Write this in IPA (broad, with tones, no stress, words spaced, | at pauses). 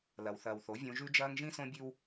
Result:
lɐ˨wθɐː˨wθo˨˦ vʲõ˦ ʒʉ˦d͡ʒɐː˦ŋ ʒĩ˦sõ˦bʲʉ˦w